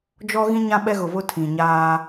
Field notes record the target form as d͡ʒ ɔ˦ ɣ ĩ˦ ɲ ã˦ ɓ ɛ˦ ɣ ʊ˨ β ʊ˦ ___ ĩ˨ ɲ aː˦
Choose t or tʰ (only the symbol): tʰ